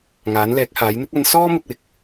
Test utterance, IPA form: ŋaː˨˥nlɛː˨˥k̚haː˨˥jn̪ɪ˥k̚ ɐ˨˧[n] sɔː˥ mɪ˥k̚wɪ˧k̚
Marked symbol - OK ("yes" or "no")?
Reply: yes